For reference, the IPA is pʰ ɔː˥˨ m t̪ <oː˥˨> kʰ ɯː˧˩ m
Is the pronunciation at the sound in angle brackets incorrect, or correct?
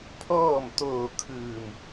incorrect